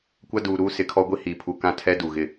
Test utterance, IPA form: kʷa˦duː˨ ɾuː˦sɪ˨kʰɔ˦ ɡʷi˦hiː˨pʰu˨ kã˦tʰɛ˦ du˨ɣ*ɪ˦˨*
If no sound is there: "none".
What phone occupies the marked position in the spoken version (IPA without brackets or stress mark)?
ɪ˦˨